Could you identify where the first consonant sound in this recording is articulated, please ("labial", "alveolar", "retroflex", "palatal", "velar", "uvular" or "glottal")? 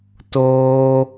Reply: alveolar